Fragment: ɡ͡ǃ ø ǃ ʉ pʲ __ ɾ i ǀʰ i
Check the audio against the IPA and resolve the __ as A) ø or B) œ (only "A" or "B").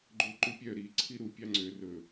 B